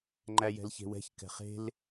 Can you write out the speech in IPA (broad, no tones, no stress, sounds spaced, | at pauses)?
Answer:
ŋ͡ǃ æ j ɛ̤ l ç e̤ w ɛ̤ ç k ɛ̤ χ e̤ l